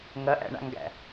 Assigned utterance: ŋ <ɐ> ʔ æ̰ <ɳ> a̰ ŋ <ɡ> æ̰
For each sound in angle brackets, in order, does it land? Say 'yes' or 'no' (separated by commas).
yes, yes, yes